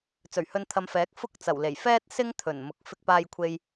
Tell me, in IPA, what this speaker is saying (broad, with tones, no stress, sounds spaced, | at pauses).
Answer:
t͡s ɵ˨˩ ɥ h ɵ˧ n t̪ʰ ɐ˧ m f ɛː˨˥ k̚ f ʊ˥ k̚ t͡s ɐ˨˩ w l e˨˩ j f ɛː˥ t̚ s ɪ˥ ŋ t̪ʰ ɵ˨˩ n m ʊ˨˥ k̚ f ɪ˧ k̚ p aː˧ j kʷʰ e˧ j